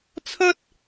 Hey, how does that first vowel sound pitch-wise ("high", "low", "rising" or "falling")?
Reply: high